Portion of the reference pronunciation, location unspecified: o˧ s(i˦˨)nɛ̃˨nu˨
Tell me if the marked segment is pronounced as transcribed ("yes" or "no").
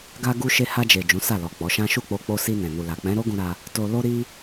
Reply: no